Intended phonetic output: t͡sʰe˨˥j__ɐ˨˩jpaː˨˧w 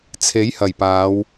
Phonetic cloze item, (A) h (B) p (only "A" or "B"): A